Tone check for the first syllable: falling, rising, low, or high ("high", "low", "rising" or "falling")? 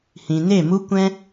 low